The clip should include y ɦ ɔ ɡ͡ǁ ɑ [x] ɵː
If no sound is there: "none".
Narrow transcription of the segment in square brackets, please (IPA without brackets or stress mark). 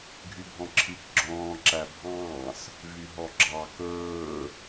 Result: k